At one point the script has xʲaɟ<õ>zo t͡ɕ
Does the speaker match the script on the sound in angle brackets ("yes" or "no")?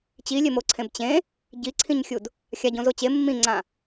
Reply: yes